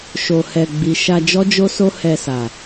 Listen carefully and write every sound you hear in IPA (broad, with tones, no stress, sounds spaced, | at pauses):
ʃ o˨ h ɛ˨ ɡ͡b i˨ ʃ a˧ d͡ʒ ɔ˦ d͡ʒ o˦ s o˦ h ɛ˧ s a˨